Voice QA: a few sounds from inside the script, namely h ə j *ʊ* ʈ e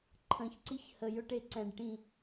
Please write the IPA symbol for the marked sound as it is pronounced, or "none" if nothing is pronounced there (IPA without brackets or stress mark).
ʊ